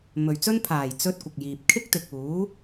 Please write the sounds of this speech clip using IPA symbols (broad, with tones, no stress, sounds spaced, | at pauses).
m ɵ˨ ɥ t͡s ɵ˥ n pʰ aː˨˩ j t͡s ɵ˧ t̚ kʷ ɪ˨ k̚ j iː˨ p̚ kʰ ɪ˥ k̚ t̪ ɪ˨ k̚ uː˨˥